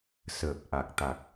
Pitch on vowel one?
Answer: low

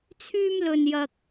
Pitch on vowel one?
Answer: high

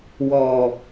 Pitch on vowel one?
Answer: low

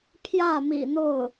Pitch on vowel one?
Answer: falling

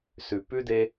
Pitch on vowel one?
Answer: low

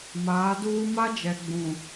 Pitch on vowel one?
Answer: rising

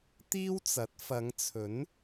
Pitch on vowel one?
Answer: high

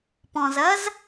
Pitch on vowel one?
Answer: low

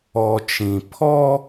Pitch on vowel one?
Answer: low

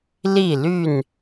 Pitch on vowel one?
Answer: falling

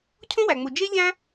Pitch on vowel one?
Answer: high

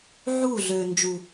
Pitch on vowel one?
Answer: falling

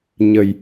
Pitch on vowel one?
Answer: low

